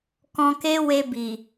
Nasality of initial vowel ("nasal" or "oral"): nasal